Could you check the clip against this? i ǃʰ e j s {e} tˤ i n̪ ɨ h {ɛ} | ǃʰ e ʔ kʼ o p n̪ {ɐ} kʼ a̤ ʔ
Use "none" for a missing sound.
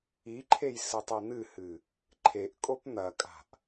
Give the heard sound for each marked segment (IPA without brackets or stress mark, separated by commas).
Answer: ɨ, ɨ, ɐ